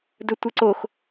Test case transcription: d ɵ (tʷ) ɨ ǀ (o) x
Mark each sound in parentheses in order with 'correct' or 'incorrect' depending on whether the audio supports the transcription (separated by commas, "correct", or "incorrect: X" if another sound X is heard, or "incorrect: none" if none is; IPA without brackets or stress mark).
correct, correct